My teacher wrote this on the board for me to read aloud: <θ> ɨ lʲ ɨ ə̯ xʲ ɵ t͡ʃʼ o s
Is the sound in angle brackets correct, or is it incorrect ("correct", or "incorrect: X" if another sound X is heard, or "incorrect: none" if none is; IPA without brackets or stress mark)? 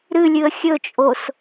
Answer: incorrect: ɾ